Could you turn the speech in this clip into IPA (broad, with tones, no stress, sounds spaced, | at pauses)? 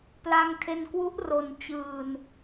p l a˧ ŋ tʰ e˧ n k w u˦˥ ʔ r o˧ n t͡ɕ ɯː˧ n